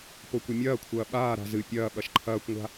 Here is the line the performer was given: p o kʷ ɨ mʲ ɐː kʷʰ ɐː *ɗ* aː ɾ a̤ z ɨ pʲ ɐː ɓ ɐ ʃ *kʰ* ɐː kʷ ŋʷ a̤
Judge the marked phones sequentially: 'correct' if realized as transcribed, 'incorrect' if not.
incorrect: ɓ, incorrect: ǃʰ

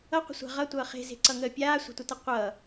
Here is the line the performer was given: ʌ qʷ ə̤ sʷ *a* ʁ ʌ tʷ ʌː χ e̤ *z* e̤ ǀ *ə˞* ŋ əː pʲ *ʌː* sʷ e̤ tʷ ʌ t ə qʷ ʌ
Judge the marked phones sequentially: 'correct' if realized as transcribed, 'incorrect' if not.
incorrect: a̤, correct, incorrect: ʌ, incorrect: aː

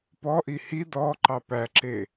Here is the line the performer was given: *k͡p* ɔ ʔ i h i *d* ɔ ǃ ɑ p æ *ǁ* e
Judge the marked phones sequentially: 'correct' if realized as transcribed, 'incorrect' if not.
incorrect: p, correct, correct

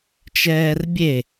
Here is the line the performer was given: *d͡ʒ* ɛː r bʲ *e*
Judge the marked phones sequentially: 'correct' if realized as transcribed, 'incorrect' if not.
incorrect: t͡ʃ, correct

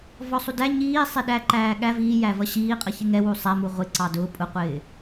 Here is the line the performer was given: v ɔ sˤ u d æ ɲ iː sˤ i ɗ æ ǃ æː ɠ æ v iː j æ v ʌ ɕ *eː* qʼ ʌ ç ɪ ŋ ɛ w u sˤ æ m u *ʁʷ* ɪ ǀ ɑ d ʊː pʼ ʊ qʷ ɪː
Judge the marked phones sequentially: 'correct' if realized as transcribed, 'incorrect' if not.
incorrect: iː, correct

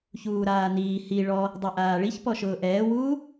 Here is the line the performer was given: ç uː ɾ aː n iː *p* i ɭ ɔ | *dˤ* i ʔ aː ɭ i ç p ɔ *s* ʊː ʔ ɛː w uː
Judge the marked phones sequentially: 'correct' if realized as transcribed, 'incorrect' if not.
incorrect: h, correct, incorrect: ʃ

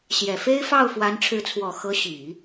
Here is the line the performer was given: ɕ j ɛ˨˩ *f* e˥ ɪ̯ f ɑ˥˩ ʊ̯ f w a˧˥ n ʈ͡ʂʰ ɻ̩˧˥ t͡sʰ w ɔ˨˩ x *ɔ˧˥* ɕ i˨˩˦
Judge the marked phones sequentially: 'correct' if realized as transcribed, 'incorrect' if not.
correct, incorrect: ɤ˧˥

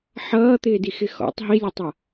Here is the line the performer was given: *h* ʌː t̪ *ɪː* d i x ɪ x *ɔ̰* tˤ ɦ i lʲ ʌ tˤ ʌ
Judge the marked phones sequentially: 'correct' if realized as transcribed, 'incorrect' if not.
incorrect: ħ, correct, correct

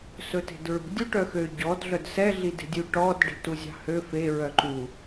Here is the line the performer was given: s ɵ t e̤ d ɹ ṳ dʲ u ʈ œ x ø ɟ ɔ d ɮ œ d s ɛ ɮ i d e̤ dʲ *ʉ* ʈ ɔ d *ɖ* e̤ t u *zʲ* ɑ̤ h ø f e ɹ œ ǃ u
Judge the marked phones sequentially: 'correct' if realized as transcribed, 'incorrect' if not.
correct, correct, correct

